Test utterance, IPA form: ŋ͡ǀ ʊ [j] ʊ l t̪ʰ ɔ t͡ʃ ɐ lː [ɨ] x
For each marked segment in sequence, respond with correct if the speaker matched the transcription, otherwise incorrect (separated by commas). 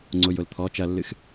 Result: correct, correct